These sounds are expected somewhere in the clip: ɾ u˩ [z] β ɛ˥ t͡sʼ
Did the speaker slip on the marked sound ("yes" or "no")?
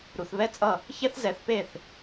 yes